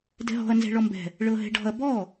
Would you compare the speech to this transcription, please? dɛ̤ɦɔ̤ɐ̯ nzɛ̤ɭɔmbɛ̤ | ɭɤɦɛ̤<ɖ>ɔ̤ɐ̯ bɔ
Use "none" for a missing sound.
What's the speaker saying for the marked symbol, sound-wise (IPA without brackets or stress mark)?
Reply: ɖ